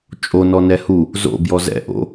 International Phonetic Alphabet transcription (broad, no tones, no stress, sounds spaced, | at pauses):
t͡ʃʼ o n ɔ n ɛ h u | z o̰ b j ɔ z ɛ̰ ʔ o̰